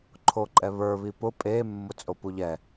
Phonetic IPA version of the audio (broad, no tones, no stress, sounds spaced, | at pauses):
ǃʰ o ǃʼ ɛ β ə˞ β i p ʊ pʼ e mː ʊ t͡sʼ o p u ʎ ɛ